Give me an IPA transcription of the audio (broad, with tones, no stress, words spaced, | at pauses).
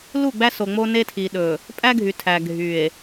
lu˦˨ɡ͡bæ˦so˨ ŋ͡mo˦ ne˦tʰi˨ ɗɵ˨ | pʼæ˦ɡʱy˨tʰæ˨ ɡʱy˨e̯